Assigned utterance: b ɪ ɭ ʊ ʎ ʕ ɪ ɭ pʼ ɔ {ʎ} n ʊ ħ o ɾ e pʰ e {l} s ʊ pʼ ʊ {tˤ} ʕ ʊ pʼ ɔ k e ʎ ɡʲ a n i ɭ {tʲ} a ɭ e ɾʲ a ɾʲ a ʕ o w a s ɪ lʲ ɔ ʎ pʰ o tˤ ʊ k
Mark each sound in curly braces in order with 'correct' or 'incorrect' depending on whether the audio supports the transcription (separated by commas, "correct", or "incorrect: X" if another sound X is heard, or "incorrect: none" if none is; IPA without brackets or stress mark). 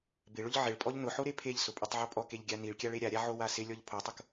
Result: correct, incorrect: ʎ, correct, incorrect: kʲ